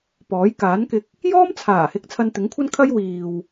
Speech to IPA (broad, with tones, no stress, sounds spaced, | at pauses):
p ɔː˨˥ j k aː˨˥ n k ɪ˨˥ k̚ | j ɔː˥ m t͡sʰ aː˨˩ h ɪ˧ k̚ t͡sʰ ɐ˧ n t̪ ɪ˨˥ ŋ kʷʰ ɐ˥ n kʰ ɐ˥ j w iː˨ w